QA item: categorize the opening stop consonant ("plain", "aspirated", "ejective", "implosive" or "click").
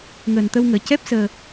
plain